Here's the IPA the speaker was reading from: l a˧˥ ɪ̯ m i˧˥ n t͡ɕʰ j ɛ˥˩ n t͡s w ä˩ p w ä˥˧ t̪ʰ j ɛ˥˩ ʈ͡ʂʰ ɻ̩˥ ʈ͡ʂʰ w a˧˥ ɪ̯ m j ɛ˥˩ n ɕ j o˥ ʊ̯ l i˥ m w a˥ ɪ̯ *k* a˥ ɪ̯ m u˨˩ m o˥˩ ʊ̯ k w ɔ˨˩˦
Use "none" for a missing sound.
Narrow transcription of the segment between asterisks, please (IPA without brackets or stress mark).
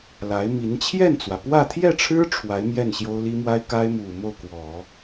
k